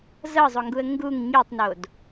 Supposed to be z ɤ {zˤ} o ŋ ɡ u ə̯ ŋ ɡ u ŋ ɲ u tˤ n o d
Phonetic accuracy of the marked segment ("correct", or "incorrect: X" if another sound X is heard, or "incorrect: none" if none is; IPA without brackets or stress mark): correct